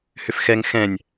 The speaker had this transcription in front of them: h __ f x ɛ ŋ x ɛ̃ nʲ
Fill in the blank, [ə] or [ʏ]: ʏ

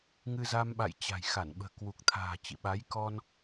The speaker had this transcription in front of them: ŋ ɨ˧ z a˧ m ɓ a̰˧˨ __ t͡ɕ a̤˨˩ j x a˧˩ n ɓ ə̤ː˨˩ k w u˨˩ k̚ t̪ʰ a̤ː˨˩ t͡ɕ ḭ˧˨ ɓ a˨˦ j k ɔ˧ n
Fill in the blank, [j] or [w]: j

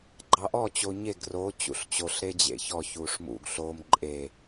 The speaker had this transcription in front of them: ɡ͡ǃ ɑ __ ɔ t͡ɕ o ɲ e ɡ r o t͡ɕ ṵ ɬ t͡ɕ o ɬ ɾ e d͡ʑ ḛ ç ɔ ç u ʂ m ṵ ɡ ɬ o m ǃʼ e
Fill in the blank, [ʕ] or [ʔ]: ʔ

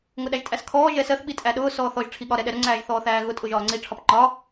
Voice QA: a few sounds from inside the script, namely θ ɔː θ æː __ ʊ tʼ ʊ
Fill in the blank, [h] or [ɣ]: ɣ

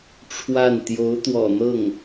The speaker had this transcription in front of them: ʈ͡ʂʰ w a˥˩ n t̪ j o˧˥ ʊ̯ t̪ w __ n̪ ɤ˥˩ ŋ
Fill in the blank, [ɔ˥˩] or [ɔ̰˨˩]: ɔ̰˨˩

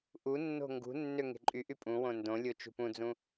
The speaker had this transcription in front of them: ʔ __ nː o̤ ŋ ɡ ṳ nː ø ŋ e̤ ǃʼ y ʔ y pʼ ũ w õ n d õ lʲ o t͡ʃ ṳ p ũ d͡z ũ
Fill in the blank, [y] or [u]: u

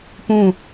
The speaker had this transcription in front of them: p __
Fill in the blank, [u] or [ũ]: ũ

